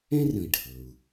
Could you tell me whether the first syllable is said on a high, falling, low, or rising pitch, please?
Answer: high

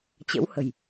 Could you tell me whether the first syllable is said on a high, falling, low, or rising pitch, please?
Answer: rising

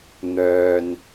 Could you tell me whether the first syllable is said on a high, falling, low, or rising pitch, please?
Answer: low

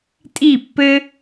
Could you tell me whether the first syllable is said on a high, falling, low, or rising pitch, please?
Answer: falling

